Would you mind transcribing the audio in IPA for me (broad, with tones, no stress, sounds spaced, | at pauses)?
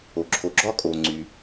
o˩ ǁʰ o˩ ɡ͡ǁ ɒ˥ kʼ o˩ ŋ͡ǀ y˩